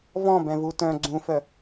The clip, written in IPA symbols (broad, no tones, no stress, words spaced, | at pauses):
vɔ̃bɛ̃vu tœ̃ ɡ͡ǀũfœ